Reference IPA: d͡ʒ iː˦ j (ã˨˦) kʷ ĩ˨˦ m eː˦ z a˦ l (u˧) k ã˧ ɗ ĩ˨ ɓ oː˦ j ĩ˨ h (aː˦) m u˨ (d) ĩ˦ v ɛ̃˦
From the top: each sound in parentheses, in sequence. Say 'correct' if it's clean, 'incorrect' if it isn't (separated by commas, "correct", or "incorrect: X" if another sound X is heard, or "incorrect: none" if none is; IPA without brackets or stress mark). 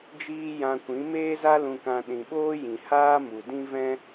incorrect: ã˧, incorrect: ũ˧, correct, correct